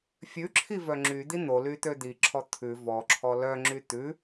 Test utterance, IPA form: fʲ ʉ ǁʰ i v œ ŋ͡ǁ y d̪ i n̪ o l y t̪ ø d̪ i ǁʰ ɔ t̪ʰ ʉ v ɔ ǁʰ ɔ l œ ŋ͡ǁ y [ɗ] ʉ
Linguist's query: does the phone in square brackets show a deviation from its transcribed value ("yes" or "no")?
yes